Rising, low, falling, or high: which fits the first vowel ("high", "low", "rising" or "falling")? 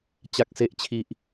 low